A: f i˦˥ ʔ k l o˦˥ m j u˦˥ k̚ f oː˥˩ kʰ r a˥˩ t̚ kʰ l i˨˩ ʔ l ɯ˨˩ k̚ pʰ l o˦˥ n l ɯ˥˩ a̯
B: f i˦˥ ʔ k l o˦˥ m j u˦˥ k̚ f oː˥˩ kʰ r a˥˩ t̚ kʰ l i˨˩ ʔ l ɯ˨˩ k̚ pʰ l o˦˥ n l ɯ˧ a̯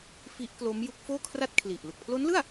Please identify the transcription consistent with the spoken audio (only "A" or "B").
A